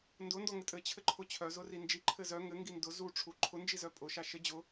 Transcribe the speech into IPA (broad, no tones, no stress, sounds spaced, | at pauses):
n d ʊ n d ɔ ŋ ɘ tʼ ɘ t͡ɕʰ ɘ ǃʰ ʊ t͡ɕʰ œ z ʊ r i n d͡ʒ i ǃʰ ɘ z œ ŋ ɘ ŋ ɡ i n d ʊ z u ʈ͡ʂʰ u ǃʰ ʊ n d͡ʒ i z œ pʼ ʊ ʃ a ʃ ɘ d͡ʑ ʊ